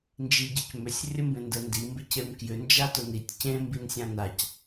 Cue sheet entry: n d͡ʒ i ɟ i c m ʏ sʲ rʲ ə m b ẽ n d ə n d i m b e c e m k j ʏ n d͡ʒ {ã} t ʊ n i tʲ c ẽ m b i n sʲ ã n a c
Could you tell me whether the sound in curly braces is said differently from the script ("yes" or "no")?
yes